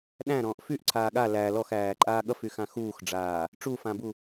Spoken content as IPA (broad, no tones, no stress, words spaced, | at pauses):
ɗæ̃ɾɔ̃ːʔ fyʔǀʰaː ɠa læ lɔxæːǃʼaː ɠʌfyxã xuːxɖ͡ʐaː | ʈ͡ʂufãbu